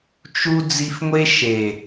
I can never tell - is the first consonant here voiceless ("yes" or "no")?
yes